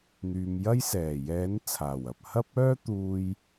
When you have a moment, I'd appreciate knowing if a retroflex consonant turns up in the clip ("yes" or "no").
no